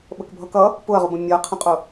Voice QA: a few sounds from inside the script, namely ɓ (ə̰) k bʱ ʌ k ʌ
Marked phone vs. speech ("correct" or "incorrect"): incorrect